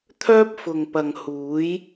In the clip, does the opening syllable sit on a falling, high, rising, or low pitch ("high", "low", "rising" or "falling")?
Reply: high